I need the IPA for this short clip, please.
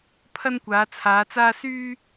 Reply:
pʰ ɐ˥ n kʷ aː˨˧ t͡sʰ aː˨˧ t͡s aː˥ s yː˥

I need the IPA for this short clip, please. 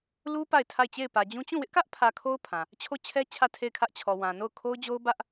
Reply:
l u˦ p a˦˨ ɪ̯ tʰ a˦˨ ɪ̯ t͡ɕ e˦˨ ɪ̯ p ä˨ d͡ʑ ũ˦ t͡ɕ ũ˦˨ w ɪ˦ ʔ k ä˦ ʔ pʰ ä˨ kʰ o˦ ʊ̯ pʰ ã˨ | t͡ɕʰ o˦˨ t͡ɕʰ ɛ˦ t͡ɕʰ ä˦˨ tʰ e˦˨ ɪ̯ kʰ ä˦ ʔ t͡ɕʰ ɔ˨ w ã˨ n o˦˨ ʊ̯ kʰ o˦ ʊ̯ d͡ʑ o˦ ʊ̯ b ä˦ ʔ

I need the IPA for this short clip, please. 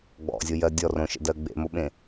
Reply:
ɡ͡b ɔ̰ zʲ o j ɜ dʲ ɔ r õ ʃ ə̰ d ɜ ɡ͡b ḛ m o ɓ ẽ

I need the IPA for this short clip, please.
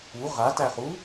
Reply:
u ʁ a t æ χ u

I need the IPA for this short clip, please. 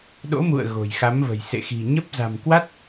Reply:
ɗ o̰˧˥ m ṵ˧˨ ə̯ ɣ o̤˨˩ j x a˨˦ m v ə̤˨˩ j s ḛ˧˨ x i̤˨˩ ɲ ə˦˥ p̚ z a̤˨˩ m k w a˦˥ t̚

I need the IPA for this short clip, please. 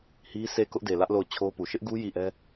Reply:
h i˦ sʰ e˦˨ k ʊ˦ ʔ d e˨ l ä˦ ʔ l o˦˨ ʊ̯ t͡ɕʰ o˦ p u˨ ʃ ɪ˦ ʔ ɡ u˦ j i˦˨ ʔ ɛ˦

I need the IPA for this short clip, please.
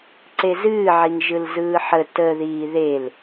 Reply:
ǀ e z ɨː ʕ i ŋ ʒ ɯ l z ɯː ħ ə t ə ð iː ð e l

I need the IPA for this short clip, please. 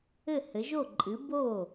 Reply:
ɘ˥˩ h ɘ˩˥ ʒ o˥˩ ǃʼ ɨ˩˥ b o˥˩

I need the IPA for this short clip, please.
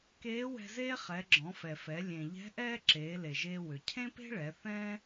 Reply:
k eː˧˥ w ɛ̤˧ z eː˥ χ ɛ˩˧ ɡ͡ǁ ɔ̃˩˧ f ɛ˩ f ɛ˩˧ lʲ ẽ˩ ʎ ɛ̤˧˥ ʔ ɛː˥ ǁ eː˩˧ l e˩ ʒ eː˧ w ʏ˩ cʰ ẽ˥ p e̤˥ ɭ ɛ˩˧ θ ɛ̃˥

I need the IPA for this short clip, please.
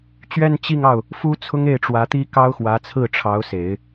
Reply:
t͡ɕ ɥ ɛ˥˧ n t͡ɕ i˥˧ ŋ ɑ˥˩ ʊ̯ | f u˥ t͡sʰ ʊ˥ ŋ e˥˩ ɪ̯ ʈ͡ʂ w ä˧˥ t̪ i˥ k ɑ˥ ʊ̯ x w ä˧˥ t͡sʰ ɹ̩˥˩ ʈ͡ʂʰ ɑ˧˥ ʊ̯ s e˨˩˦ ɪ̯

